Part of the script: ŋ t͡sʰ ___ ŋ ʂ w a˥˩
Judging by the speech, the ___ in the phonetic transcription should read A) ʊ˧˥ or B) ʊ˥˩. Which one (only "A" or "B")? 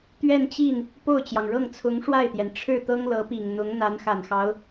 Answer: A